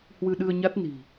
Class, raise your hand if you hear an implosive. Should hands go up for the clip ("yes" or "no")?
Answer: yes